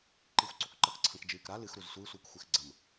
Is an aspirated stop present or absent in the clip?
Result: present